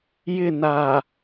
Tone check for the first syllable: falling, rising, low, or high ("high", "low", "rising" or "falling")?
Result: falling